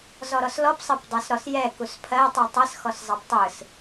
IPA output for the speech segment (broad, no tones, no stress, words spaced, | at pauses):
zɔɾɔslɔp sˤɜpdˤɛsɾɔsjɛ kuspʰɜ tˤɯtˤɜs xɔszˤɑptˤɯs